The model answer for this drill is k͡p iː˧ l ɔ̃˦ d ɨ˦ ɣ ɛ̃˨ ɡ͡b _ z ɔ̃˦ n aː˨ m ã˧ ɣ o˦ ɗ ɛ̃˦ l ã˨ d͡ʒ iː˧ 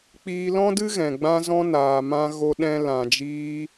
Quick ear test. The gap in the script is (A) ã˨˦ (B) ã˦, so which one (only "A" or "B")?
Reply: B